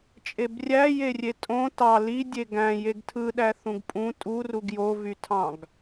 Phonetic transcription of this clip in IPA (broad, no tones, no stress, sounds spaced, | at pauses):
t͡ʃʼ e b rʲ æ j e rʲ e tʼ õ t ɑ l i dʲ e ɡ æ̃ j e ɡ tʰ ɯ ɗ æ θ ũ ɡ pʼ ũ tʼ u r u ɡ j o v y tʰ ɑ̃ ɡ